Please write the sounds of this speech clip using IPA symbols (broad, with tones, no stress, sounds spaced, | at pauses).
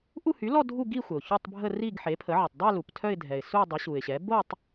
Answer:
ʔ u˥˧ h y˩˥ l ɔ˥˧ dʱ u˥˧ ɡ i˥˧ xʷ ə˩ ʊ̯ ç o˥˧ tˤ bʱ ə˥˧ r i˥˧ ɡ ħ e˩˥ pʰ ə˩˥ ʕ ə˩ tˤ dˤ œ˥˧ l u˩ p tʰ œ˥˧ ɪ̯ dʱ ɛ˩ ɪ̯ s u˥˧ dˤ ɛ˩˥ ɕ u˩ ɪ̯ ɕ ɛ˩˥ b o˥˧ tˤ